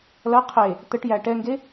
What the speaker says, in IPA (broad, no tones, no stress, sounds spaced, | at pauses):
l ɐ qʰ e | t̪ ə ʈ j æ ʈ ɛ ŋ ɡ e